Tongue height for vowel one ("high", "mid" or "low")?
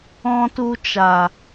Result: mid